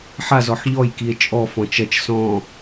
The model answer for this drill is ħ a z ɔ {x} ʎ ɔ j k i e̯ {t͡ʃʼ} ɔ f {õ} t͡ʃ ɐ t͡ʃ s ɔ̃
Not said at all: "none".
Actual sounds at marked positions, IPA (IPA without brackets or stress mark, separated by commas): ħ, t͡ʃʼ, ɔ̃